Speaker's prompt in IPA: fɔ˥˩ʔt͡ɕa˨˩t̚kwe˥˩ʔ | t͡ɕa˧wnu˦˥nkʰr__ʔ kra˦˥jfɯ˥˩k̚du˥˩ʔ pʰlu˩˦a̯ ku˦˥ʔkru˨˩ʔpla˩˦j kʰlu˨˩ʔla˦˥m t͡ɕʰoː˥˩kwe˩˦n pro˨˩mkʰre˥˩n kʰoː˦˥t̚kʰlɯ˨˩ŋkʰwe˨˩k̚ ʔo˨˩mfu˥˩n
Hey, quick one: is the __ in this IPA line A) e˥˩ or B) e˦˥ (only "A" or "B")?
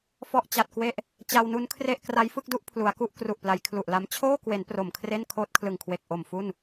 A